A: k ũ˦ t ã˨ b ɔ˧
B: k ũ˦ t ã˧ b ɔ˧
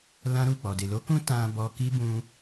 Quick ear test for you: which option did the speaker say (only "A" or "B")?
B